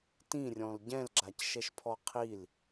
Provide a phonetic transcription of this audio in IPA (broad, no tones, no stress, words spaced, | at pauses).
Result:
tĩrʲɔ̃l ɟɛ̃lɡ͡ǁacʃɛʃpʰɔ qʰil